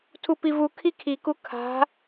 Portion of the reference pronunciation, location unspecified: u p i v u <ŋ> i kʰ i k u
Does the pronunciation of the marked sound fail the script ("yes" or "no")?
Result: yes